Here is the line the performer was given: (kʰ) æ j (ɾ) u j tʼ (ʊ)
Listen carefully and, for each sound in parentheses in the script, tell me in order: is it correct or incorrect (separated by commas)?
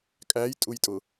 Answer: incorrect, incorrect, correct